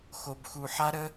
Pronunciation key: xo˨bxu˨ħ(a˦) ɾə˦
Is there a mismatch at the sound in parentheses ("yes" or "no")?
no